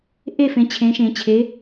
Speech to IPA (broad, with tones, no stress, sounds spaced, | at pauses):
ʔ e˥˨ f ẽ˩˥ t͡ɕʰ ẽ˩˥ ʃ ẽ˨˩˦ t͡ɕʰ e˩˥